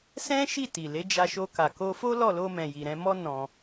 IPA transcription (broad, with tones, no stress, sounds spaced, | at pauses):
s ɛ̃˦ ʃ i˦˨ t i˨ l e˨˦ d͡ʒ a˧ ʃ o˧ k a˨ k o˧ f o˦ l ɔ˦˨ l o˧ m ɛ̃˨ j i˨ ɾ ɛ̃˧ m ɔ˦ n ɔ̃˧